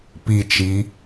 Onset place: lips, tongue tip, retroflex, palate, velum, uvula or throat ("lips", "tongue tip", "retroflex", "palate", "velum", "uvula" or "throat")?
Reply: lips